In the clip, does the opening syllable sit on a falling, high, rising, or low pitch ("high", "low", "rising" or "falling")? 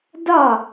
falling